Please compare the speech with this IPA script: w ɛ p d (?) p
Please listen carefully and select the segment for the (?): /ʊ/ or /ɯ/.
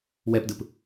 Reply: ɯ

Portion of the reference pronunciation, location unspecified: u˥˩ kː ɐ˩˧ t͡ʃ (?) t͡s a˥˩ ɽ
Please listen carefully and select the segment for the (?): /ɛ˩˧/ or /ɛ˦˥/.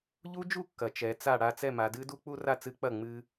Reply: ɛ˩˧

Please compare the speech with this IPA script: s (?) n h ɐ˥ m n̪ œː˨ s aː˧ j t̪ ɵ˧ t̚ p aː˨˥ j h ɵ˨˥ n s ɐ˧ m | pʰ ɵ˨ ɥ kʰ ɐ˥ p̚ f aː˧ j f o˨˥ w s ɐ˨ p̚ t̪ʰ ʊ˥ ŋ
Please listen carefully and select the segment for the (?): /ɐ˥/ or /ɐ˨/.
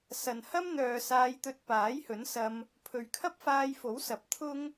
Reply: ɐ˨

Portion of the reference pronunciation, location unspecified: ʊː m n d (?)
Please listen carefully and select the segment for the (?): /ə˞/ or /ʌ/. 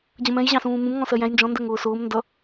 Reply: ʌ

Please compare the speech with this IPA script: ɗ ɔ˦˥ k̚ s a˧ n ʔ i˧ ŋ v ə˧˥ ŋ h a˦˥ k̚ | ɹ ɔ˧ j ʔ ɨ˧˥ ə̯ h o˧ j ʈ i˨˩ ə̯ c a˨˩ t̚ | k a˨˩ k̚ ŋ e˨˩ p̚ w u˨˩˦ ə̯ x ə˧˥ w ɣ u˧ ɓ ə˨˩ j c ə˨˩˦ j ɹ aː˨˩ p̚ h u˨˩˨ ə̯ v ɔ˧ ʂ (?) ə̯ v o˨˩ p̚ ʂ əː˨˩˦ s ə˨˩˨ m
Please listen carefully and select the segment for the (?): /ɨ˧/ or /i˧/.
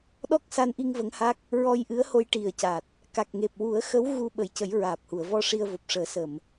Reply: i˧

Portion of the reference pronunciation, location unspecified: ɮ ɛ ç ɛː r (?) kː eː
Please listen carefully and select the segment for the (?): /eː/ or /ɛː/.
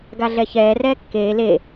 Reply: ɛː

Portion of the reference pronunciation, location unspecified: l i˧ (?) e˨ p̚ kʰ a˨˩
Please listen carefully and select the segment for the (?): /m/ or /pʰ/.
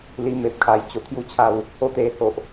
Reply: m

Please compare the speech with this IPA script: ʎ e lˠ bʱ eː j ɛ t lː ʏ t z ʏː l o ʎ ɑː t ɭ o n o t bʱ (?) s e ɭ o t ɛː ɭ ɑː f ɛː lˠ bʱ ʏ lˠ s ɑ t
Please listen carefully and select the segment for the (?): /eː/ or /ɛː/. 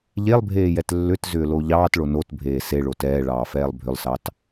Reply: eː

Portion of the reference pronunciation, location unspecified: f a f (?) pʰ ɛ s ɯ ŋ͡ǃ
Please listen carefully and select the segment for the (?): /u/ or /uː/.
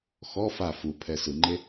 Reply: u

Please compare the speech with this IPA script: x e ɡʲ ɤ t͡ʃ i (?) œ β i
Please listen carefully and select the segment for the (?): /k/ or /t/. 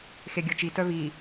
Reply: t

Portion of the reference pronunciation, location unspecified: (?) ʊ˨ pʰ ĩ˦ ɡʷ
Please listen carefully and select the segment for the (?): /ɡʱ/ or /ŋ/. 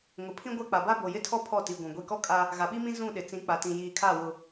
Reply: ŋ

